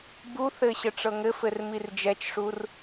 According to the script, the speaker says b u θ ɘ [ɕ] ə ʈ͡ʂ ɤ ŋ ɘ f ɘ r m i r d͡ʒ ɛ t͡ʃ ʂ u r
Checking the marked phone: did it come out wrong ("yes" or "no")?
no